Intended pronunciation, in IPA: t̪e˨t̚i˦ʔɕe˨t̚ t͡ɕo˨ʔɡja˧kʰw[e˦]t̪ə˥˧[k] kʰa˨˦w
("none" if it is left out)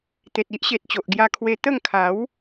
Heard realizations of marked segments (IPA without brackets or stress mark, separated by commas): e˧, ŋ